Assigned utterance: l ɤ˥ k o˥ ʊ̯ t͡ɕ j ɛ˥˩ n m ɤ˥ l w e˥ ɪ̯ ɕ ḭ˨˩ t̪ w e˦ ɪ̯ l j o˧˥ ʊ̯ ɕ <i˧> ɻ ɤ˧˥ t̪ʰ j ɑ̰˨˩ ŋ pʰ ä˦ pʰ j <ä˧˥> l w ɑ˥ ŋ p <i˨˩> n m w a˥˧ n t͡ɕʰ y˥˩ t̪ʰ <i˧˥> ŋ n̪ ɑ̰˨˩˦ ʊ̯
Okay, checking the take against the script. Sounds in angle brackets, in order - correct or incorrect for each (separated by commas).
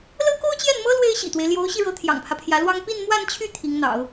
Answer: correct, correct, incorrect, correct